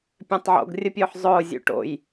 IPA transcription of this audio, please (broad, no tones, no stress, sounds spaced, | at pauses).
pʲ ɛ̃ tˤ ʕ o̰ ɡ rʲ ə pʲ ʊː ħ zˤ ʊː zʲ ṵ ʈ o̰ j